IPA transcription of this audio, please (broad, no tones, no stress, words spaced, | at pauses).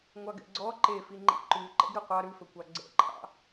ŋʷɑɡɛ̰ɡ͡ǀɔ ǃefi ŋ͡ǃḭǃʉ ǃɛ̰ɡɾʉqʷɑ ɾʉfɵkʷɑ ɡ͡ǀɛ̰ǃʰɑ̰